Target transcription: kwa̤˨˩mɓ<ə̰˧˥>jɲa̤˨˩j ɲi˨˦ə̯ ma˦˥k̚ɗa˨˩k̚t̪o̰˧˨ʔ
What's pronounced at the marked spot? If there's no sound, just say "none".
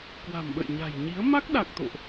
ə̰˧˨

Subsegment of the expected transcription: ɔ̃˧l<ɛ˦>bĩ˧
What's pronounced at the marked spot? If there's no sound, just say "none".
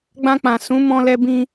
ɛ˧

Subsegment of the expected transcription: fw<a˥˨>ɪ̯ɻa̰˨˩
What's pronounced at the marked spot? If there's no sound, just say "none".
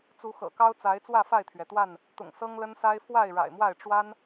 a˥˨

